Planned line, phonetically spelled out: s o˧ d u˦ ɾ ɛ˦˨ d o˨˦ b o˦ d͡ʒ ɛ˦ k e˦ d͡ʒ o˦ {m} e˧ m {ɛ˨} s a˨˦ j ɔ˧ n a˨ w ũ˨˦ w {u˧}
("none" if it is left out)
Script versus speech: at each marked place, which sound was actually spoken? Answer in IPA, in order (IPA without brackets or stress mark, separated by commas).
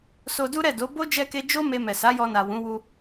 m, ɛ˨, u˧